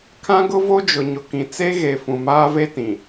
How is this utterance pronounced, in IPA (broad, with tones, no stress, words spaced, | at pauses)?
kʰã˦ɡʊ˦ vo˦d͡ʒʊ˨ɲʊ˨kĩ˨ t͡se˦ɣe˨ fũ˨maː˦ve˦tĩ˨